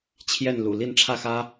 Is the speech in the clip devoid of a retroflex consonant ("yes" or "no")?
no